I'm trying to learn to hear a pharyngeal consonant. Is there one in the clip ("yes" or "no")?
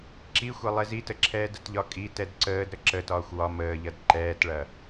no